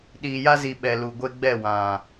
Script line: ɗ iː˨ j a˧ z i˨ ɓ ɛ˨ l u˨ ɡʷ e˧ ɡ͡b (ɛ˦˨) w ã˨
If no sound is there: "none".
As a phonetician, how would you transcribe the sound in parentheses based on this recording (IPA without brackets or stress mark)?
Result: ɛ˦˨